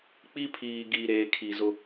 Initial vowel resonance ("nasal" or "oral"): oral